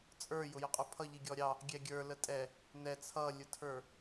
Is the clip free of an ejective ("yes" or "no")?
no